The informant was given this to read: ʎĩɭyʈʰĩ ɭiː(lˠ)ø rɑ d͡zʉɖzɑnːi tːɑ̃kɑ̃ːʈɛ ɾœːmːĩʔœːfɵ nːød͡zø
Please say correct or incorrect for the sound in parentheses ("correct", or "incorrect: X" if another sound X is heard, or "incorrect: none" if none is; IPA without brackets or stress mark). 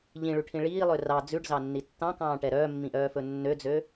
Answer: correct